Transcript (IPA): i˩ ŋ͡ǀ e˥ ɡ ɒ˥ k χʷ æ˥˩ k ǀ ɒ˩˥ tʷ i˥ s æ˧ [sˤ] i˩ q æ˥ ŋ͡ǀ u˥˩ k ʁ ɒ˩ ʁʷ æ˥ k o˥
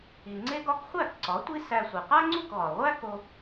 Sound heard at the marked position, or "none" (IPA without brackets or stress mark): sʷ